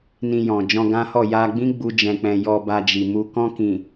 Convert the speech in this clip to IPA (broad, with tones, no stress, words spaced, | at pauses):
nĩ˧jɔ̃˨ d͡ʒɔ̃˧ɡã˦hɔ˦˨ ja˧ɡ͡bĩ˦ ɡ͡bu˦d͡ʒɛ̃˧k͡pɛ̃˧ jɔ˧ba˧ d͡ʒi˨mu˧ kɔ̃˧kĩ˨